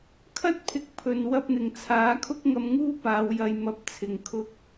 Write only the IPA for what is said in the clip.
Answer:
kʰɐ˥t̚pʰɪ˨˥k̚ pʰɵ˨n wɐ˧p̚n̪ɪ˨˩ŋt͡sʰaː˨˥kʰʊ˥k̚ ŋɐ˧mŋuː˥ paː˨˧wjɐ˧j mɐ˧p̚t͡sʰɪ˨ŋ kʰʊ˧k̚

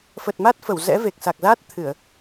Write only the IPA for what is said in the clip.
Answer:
fə˨˩t̚ma˦˥t̚ fə˧˩wzɛ̰˧˥ve˨˩k̚sa˨˩k̚ zaː˦˥t̚ t̪ʰɨ˧˩˨ə̯

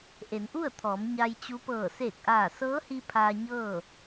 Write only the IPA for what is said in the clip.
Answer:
ʔe˩˧nʔu˥˨ə̯t̪ʰɔː˩˧m ɲa˧jt͡ɕu˧˥pɤː˧˩ seː˧˩k̚ʔaː˧˩ sɤː˧˥hi˧ pʰaː˧ɲɤː˥˨

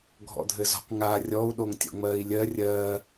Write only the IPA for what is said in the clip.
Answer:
ɡʱɔ̰dʱɘzɔ̤q ŋa rʲɔu̯ ɗoŋtʲɔ̰ŋ͡mɜːi̯lʲɜ rʲɜː

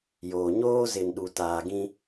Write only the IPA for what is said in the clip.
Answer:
joː˨ ɲoː˦zɪ˨nɗu˨ taː˨ɡĩ˦

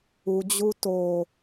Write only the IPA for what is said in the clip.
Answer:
ud͡ʑu to

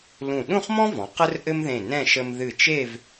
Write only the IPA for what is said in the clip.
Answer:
lũ˧˩ ɗũ˥˧χmɔ̃˥vɔ̃˩˧ qə˥rʔɘ˥mðẽ˧˩nɛ̃˥˧ ʃə˧m ðɨ˧˩t͡ʃe˥˧v

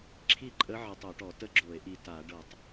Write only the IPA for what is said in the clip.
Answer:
ǁʰi˥˨ǃʼə˧˥ ʕə˧˥tˤo˧˩˧ʈɔ˧˩˧ tə˥˨ɡ͡ǁo˧˩˧e̯ʔi˨˩ ta˧˩˧ ɖɤ˧˩˧tˤ

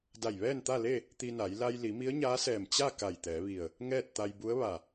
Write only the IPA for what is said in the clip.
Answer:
da˧˩jʋɛː˥˨nt̪a˥˨le˥˨ | t̪i˧na˩˧j la˧jli˩˧ mi˧˥ə̯ɲaː˧˥sɛː˧˩m t͡ɕa˥˨ ka˧˩jt̪ɛː˩˧ʋi˧˩ə̯ | ŋɛː˥˨t̚t̪a˧j bu˧˥ə̯ʋa˧˩

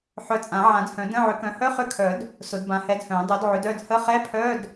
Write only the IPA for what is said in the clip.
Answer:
ħœ˨˥t͡sʼã˨˩˦ ʕã˨˩˦dhœ̃˨˩˦ də̃˧˥˧ʕʏ˨˥kœ̃˨˥ hœ˧˥˧χʏ˧˥˧kʰœ˨˩˦d | sʊ˨˩˦dbã˨˥hɛ˨˥dhœ̃˨˩˦ dˤœ˨˥dʕʏ˨˥dœ˧˥˧d hə˧˥˧ χɛ˧˥˧pʰœ˧˥˧d

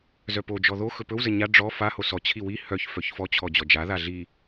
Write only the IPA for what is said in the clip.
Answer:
zœpod͡ʒɔ ðoxɵ pɵwzə ɲa ɖ͡ʐɔ faho sɔt͡ɕʰi wi hœç fœçfɔt͡ɕʰɔ d͡ʑɔd͡ʒaða ɮi

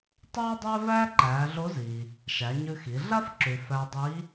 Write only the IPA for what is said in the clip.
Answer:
tˤʌː˥dˤæ˥ væː˥ǃæː˩˧ɮo˧˥ziː˩ | ʃæ˩˧ɲʉ˧xi˩˧ ɮa˥fǁʉ˩ fæ˧dˤiː˧˥

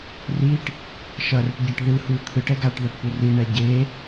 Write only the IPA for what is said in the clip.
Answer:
riʈ | ʃʌrɯʈɟɛʈ ðɯhu t̪ʰɯʈɛ ɡaʈðaʈpu riɳɛ ɟe

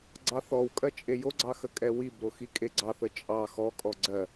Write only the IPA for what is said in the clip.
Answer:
ɡ͡ǀɑθɔwkʼɜ t͡ʃʼejoɡ͡ǀɑ xəkʼɛwibɾo xikʼeɡ͡ǀɑθə t͡ʃʼɑ xɔkʼɔ ɡ͡ǀɜ

